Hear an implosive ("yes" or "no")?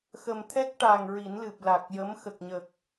no